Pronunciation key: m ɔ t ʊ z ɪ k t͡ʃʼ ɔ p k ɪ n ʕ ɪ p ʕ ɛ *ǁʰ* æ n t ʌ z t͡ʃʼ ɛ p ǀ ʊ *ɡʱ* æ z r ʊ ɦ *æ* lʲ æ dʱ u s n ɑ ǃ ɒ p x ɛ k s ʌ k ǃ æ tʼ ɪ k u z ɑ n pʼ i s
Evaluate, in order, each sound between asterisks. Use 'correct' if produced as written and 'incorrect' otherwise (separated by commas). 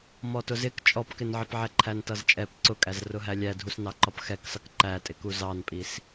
incorrect, incorrect, correct